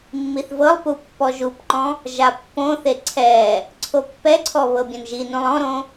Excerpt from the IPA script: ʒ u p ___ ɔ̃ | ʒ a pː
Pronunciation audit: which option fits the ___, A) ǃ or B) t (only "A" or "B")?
A